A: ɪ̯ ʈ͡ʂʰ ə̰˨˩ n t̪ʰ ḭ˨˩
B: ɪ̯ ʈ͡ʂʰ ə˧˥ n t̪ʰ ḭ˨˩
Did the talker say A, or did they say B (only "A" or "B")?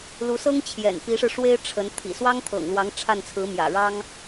B